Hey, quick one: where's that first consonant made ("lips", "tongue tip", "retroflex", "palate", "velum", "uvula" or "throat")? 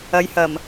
palate